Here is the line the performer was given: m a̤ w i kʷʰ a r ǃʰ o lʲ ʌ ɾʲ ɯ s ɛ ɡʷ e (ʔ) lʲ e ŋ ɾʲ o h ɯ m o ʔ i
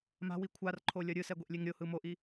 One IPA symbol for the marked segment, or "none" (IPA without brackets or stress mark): ʔ